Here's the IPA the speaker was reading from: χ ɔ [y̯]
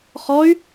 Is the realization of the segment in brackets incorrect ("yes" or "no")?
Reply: no